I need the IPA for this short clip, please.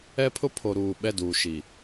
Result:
ɛ˦ pʰ ʊ˦ pʰ o˨ ɾ uː˨ ɓ ɛ˦˨ d uː˨ ʃ i˨

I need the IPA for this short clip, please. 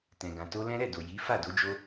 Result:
t ɛ̃˨ ɡ ã˨ t o˧ l ɛ̃˦ ɾ ɛ˦˨ d o˨ j i˨˦ f a˦˨ d o˨˦ d͡ʒ o˦

